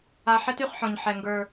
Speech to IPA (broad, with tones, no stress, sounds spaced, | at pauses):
a˧ ħ ɛ˦ t y˨ χ ħ ɔ̃˨ ɲ ħ ɛ˨ ŋ ɡ ə˞˨